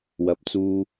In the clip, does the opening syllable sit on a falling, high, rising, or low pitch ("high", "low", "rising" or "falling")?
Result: low